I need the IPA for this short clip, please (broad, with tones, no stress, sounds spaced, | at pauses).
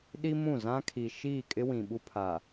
ɗ i˦ m ũ˦˨ z ã˦ kʰ i˨ ʃ iː˦˨ kʼ ɪ˦ w ĩ˨ ɓ u˦ pʰ a˨